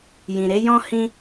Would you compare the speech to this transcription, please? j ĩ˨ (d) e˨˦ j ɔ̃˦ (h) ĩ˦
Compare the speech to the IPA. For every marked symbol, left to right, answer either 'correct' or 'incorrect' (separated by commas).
incorrect, correct